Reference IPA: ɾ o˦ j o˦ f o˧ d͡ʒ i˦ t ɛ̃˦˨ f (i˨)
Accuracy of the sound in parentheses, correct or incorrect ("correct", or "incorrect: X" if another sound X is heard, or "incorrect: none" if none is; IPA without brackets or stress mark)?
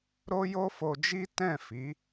incorrect: i˨˦